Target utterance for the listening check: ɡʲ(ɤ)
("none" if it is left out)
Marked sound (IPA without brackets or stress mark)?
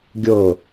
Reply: ɤ